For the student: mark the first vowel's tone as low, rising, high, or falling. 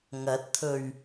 rising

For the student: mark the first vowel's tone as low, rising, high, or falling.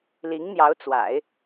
rising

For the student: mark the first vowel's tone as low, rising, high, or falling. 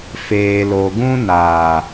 low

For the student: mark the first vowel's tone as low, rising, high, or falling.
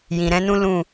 low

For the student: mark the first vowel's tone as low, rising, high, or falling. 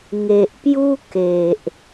low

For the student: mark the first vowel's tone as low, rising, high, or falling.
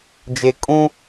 low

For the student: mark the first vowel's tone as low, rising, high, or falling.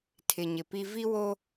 low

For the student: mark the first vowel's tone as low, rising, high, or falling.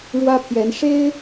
high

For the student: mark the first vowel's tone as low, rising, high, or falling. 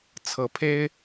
rising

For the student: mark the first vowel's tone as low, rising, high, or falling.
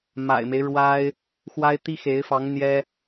low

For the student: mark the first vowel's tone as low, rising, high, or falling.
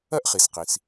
high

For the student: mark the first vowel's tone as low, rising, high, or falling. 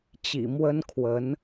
low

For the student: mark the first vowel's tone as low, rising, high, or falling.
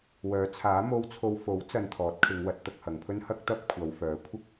rising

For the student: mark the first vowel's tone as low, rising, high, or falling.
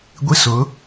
high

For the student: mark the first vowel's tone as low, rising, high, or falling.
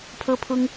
high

